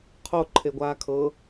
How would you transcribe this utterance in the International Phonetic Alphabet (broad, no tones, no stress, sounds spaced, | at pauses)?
qʰ o ǃʰ e ɡʷ aː kʰ ɤ